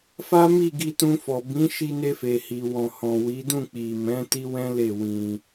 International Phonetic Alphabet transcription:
fa˦mi˦˨ ɡi˧tũ˧fɔ˨ bĩ˨˦ ʃi˧ ne˧fe˨hi˨ wɔ̃˨hɔ̃˨ wi˨˦dũ˦˨ k͡pi˨mɛ̃˨˦ ti˦wɛ̃˦le˦˨ wĩ˧

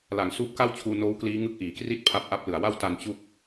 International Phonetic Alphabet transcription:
la˩˦ŋsuː˦˥p̚ka˥˩wt͡ɕʰuː˧ noː˦˥wkliː˦˥ ŋɯ˦˥k̚ʔiː˩˦kri˥˩t̚pʰa˦˥p̚ ʔa˦˥p̚lɯ˨˩a̯wa˥˩w ta˧n t͡ɕu˥˩k̚

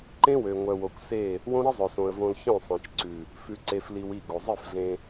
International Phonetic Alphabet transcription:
ǃẽ˦wø˨ ŋʷœ˨wo˨kʷse˦˨ | wõ˦ɾi˦zˤœ˨sõ˨ə̯ võ˨l çœ̃˦˨sˤẽ˨t͡ʃǀʉ˨ | fʉ˨ǀe˨fli˨w i˦˨ɡo˨ zˤi˦˨f ɮẽ˦

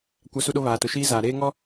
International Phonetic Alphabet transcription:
kʷa˦su˦ɗo˦ βaː˨tʊ˨ ʃiː˦zaː˨ɾeː˦ŋɔ˦

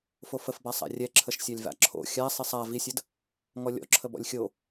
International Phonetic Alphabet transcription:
fofəfbasˤa̰ rʲɛǁʰəʃsʲalʲva̰ ǁʰo̰ xʲasˤisˤ a visʲəd | ŋɔlʲɔ̰ǁʰə bɔ̰lʲxʲo

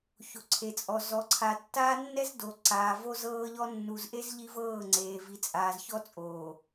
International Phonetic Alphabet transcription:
ço˨ǀʰe˨t͡sʼɔ˨ zɔ˨ ǀʰa˨tːaː˦nːɛ˦zdo˨ ǀaː˨vo˦zɤː˦ʎɔ˦ nːu˨zʔe˦z ʎi˦vɤː˦˨ŋ͡ǀeː˨ vi˨t͡sʼaː˨zçɔ˦t͡sʼoː˨

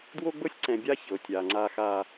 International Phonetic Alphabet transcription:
dwo˦ɡ͡bɤ˦sʲǀɛ̃˨bʲa˦ çɤ˨tʲa˨ŋ͡ǀa˦ xa˦

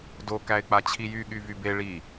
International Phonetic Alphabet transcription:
do kæɪ̯k͡pat͡ɕʰijy ɠyvybe ɭi

